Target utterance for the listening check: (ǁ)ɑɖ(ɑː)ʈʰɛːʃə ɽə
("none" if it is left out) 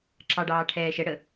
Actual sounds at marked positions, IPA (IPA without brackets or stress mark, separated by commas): ǁ, ɑː